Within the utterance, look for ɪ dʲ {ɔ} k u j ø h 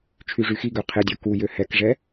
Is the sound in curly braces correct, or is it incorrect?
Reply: correct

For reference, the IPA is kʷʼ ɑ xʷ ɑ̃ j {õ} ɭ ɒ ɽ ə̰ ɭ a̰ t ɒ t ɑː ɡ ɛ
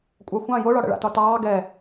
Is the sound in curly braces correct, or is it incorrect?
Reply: incorrect: o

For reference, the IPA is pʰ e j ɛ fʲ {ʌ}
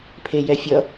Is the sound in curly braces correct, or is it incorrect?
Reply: correct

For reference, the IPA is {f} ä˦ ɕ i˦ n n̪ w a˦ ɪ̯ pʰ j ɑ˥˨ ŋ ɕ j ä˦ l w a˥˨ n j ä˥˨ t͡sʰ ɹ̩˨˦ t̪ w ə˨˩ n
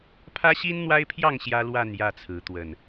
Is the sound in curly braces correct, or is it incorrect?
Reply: incorrect: pʰ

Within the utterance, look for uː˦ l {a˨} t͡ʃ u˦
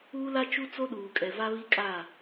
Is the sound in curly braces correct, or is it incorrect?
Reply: incorrect: a˦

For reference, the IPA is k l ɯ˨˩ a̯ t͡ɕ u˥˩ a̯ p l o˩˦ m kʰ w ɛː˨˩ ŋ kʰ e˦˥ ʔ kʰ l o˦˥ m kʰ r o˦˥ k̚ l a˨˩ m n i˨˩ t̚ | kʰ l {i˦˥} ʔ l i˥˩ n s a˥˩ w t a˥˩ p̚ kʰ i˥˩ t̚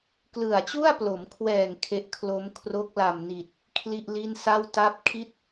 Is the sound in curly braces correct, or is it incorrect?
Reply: incorrect: i˥˩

